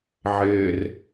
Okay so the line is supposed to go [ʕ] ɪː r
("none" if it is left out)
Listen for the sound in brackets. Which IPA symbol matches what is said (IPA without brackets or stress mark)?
ʕ